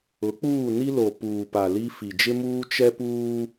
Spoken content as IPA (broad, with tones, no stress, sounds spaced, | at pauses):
ʊ˨˦ k͡p uː˦˨ n i˦ l o˨ p uː˨ p a˨ l i˦ f i˨ d͡ʒ ɪ˦ m uː˦ t͡ʃ ɛ˦ p uː˦